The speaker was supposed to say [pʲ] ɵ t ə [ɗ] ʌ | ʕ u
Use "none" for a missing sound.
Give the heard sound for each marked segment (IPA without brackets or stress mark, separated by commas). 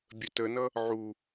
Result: bʲ, n